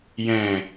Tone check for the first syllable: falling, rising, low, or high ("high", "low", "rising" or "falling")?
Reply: low